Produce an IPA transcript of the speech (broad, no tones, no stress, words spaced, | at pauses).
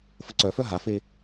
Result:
fəǀœfœ ɦafe